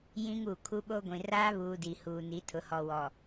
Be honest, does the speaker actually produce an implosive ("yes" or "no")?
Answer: yes